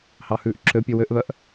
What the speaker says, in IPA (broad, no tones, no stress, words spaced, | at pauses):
hɑhʉːʔǁʰøpʲø wøʔβœʔ